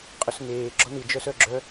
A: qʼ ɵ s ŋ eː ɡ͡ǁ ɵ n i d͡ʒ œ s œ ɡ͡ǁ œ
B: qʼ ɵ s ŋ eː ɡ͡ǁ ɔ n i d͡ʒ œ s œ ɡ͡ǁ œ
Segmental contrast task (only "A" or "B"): B